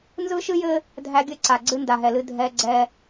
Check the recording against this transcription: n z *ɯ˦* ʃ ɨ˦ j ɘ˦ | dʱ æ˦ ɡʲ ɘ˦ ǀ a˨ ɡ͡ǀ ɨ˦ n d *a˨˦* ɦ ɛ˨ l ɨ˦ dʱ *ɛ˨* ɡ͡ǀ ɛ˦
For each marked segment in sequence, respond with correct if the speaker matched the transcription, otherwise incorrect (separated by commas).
correct, incorrect, incorrect